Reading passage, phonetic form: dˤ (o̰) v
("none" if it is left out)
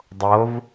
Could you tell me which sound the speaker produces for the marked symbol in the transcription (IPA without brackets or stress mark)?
o